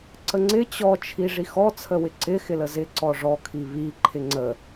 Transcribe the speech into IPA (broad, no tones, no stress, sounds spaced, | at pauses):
ǀ ə ŋ͡ǀ ɪ t͡ɕ ɔ t͡ʃʰ i ʐ i x ɔ t͡sʰ ə w ɪ ǀ ɪ x ɪ l ə z ɪ ǀ ɔ ʐ ɔ kʰ i β i ǃʰ ɪ ŋ͡ǀ ə